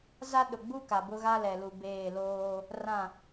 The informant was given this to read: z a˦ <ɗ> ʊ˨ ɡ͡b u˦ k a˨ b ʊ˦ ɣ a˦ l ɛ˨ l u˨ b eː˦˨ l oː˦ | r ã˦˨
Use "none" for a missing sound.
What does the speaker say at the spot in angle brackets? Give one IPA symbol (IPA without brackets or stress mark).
ɗ